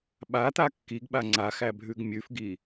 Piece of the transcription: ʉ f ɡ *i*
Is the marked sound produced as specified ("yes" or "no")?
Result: yes